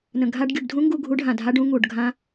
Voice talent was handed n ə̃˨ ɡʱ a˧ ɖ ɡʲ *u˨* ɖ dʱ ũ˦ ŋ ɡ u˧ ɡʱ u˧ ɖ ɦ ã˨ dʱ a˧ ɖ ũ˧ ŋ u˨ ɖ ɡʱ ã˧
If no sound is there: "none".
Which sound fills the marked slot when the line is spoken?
u˨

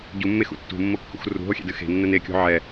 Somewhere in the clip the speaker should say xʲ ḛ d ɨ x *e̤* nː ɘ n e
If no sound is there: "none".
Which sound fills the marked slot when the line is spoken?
e̤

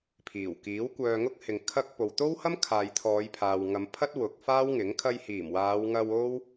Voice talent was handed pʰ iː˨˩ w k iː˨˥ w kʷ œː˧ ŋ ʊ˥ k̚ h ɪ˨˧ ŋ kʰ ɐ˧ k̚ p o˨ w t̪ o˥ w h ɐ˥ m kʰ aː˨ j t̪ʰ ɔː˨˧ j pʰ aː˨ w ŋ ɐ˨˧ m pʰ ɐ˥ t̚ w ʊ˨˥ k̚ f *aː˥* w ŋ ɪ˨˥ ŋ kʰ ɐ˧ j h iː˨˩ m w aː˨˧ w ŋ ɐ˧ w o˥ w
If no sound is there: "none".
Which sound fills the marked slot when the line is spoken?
aː˥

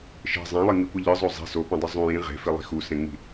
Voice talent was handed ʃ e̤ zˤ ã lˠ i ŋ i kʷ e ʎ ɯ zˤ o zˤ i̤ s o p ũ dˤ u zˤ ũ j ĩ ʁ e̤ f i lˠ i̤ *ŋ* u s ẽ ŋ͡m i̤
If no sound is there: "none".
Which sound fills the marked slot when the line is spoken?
x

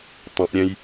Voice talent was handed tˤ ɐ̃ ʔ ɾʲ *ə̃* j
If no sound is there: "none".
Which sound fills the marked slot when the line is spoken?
ɛ̃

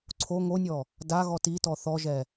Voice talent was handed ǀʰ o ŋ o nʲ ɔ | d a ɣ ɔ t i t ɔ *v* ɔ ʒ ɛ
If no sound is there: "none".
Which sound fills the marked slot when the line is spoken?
θ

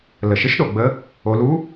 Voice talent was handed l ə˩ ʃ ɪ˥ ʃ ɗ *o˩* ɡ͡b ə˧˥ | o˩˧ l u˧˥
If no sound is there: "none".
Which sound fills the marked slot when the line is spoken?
o˩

